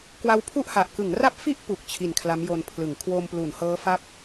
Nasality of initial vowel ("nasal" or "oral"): oral